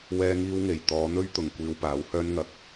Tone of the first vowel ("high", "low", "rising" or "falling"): high